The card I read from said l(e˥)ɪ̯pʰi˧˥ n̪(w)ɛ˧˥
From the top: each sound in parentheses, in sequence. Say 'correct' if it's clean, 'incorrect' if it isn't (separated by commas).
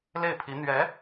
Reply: incorrect, incorrect